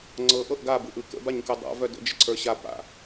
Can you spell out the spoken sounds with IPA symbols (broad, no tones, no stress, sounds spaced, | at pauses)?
ŋ͡ǀ ɤ ʔ ɤ ʔ ɡ a b ɯ ʔ ɯ k ə̰ b a ɲ k ɯ dˤ a̰ v œ d ə̰ d͡ʒ ə ǀʰ ə˞ ɕ a p a̰